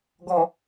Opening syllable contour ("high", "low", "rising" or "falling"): low